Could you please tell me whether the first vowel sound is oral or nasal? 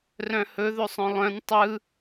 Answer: nasal